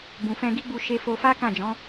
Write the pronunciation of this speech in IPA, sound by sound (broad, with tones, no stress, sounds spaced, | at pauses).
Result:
b ũ˨ f ɛ̃˧ ɡ i˦ ɡ͡b u˧ ʃ e˧ f o˧ f a˦ k ã˦˨ d͡ʒ ɔ̃˨˦